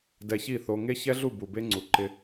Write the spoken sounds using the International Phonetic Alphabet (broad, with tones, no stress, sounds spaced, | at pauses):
d ɛ˧ ç i˦˨ θ o˧ ŋ e˦ ç ɛ˦ ɮ u˦˨ b u˨ b e˦ ŋ͡ǀ u˨ ǃ ɪ˧